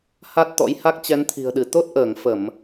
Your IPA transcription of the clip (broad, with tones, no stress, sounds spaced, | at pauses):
h a˦˥ t̚ t̪ ɔ̰˧˥ j h a˦˥ k̚ t͡ɕ ɛ˨˦ n t̪ʰ i̤˨˩ ə̯ ɗ ɨ˧˩ t̪ o˦˥ t̚ ʔ əː˧˩ ŋ f ə˧˩˨ m